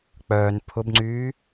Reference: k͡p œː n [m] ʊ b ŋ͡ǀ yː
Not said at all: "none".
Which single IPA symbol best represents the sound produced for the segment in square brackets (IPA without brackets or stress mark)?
pʰ